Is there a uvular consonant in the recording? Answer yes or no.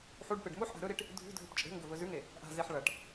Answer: no